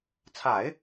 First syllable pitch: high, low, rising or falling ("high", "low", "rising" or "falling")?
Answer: low